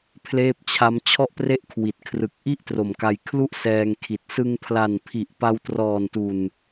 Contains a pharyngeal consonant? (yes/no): no